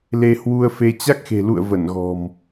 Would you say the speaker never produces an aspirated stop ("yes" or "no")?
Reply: yes